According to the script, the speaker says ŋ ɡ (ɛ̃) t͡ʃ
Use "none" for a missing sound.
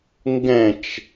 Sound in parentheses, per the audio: ɛ̃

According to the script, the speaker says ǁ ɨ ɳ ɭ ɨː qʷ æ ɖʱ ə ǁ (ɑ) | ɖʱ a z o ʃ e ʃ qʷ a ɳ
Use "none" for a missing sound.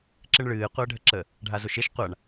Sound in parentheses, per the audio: ə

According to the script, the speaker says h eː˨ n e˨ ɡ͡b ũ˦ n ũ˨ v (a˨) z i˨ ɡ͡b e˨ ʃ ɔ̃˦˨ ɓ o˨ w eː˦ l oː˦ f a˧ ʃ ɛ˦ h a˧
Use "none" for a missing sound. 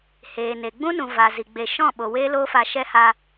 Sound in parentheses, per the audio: a˨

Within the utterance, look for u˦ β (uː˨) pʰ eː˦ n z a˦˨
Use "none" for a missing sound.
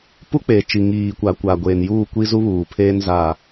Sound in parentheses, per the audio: uː˨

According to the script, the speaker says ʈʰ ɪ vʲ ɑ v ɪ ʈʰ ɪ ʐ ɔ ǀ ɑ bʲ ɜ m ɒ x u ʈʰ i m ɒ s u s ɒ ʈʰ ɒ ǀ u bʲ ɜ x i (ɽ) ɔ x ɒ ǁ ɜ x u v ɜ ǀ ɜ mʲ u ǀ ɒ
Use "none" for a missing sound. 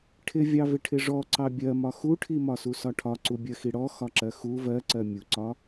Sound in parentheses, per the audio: ɽ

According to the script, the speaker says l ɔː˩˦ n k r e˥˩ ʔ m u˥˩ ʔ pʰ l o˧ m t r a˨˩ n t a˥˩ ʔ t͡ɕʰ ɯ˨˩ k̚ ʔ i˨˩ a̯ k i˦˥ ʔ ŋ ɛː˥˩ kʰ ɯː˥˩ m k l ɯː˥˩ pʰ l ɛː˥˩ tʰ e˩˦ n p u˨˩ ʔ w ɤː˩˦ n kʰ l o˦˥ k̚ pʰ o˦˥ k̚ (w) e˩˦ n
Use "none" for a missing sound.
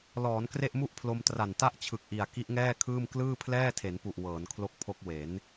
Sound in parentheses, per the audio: w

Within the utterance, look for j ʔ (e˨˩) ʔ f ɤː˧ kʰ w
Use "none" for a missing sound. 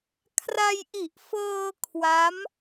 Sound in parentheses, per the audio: i˨˩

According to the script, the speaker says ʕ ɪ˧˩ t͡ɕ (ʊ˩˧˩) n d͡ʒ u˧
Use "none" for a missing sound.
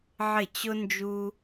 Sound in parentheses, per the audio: ʊ˧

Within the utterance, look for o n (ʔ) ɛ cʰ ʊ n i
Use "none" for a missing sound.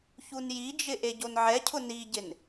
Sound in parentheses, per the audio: ʕ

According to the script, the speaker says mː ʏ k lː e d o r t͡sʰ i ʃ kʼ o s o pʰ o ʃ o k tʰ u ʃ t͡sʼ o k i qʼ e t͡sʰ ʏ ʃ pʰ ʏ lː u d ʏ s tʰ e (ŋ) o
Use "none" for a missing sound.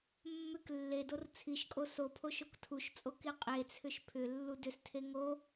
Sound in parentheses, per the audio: ŋ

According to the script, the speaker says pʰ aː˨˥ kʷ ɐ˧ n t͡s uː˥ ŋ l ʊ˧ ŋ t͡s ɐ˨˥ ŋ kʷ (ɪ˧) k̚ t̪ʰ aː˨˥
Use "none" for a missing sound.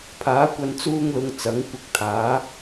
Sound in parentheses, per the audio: ɪ˧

